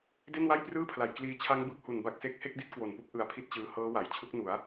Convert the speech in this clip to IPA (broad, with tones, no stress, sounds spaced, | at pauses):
d e˥˩ n w a˥˩ j p r ɯː˥˩ pʰ l a˨˩ j k l iː˧ t͡ɕʰ a˦˥ ŋ b ɯ˦˥ k̚ h u˨˩ n b a˥˩ k̚ s e˥˩ k̚ h e˥˩ k̚ d i˥˩ t̚ k w o˨˩ n p u˦˥ k̚ ʔ ɯ˧ a̯ pʰ i˥˩ t̚ t͡ɕ ɯː˧ h ɤː˦˥ w a˩˦ j t͡ɕʰ u˦˥ k̚ n u˩˦ a̯